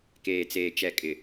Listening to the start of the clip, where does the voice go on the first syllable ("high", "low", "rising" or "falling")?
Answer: low